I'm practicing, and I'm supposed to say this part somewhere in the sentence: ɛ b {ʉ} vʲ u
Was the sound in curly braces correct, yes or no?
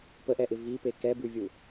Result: yes